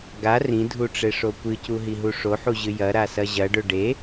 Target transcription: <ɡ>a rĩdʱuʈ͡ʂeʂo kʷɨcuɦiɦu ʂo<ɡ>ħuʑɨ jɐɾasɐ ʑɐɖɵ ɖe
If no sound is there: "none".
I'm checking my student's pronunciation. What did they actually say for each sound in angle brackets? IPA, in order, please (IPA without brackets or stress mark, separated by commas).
ɡ, none